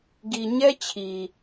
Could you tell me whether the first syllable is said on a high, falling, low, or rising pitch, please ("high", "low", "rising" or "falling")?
low